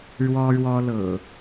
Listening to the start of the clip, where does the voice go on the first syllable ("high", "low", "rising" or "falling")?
high